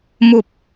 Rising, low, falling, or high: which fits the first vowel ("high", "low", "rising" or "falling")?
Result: low